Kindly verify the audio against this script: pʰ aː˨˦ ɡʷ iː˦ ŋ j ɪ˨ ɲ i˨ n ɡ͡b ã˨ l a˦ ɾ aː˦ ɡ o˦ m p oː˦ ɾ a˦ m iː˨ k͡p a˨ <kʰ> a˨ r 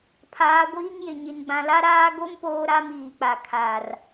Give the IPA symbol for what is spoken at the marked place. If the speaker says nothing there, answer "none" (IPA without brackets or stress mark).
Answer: kʰ